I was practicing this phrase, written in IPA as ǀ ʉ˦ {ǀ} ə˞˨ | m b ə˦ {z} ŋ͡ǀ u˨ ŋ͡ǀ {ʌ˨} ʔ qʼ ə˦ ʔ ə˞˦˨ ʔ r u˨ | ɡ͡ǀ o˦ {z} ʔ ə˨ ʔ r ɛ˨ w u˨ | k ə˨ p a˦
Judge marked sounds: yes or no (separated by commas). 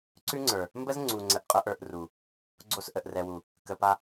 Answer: no, yes, no, no